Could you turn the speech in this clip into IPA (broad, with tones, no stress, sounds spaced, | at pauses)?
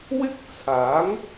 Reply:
w ɪ˥ k̚ t͡sʰ aː˨˥ ŋ